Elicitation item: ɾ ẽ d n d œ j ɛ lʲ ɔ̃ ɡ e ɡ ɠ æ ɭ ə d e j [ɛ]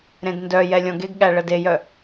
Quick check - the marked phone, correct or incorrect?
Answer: incorrect